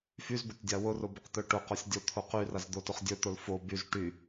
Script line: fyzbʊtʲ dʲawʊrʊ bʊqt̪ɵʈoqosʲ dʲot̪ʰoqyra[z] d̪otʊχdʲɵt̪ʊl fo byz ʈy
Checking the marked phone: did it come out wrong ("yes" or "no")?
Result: no